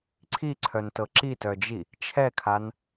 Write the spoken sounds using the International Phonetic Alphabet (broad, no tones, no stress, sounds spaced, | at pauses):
ǀʰ i ǀʰ œ n t ɤ ǁ i t œ d͡ʒ i | t͡ʃʰ ɛ kʰ a n